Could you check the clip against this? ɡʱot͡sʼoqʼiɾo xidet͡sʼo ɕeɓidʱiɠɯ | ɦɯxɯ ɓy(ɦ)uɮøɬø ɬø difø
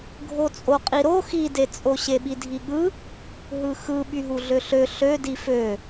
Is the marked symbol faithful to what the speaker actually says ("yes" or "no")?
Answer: yes